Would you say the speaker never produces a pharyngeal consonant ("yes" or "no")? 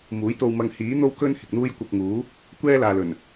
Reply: yes